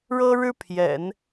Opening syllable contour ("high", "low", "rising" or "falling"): high